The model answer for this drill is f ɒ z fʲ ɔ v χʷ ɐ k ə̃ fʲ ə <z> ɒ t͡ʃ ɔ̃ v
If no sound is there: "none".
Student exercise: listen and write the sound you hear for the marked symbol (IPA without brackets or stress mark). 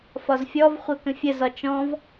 z